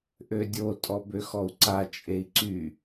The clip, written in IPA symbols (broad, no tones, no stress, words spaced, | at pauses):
ʔødʲo tʼɔbøxɔu̯ǀa t͡ʃʼei̯ǀy